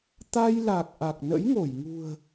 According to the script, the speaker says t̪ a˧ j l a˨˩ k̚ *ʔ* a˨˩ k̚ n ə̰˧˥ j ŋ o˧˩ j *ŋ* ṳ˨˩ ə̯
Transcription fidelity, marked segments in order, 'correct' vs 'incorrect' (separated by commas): correct, correct